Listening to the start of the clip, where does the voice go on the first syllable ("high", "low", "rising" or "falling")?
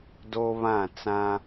high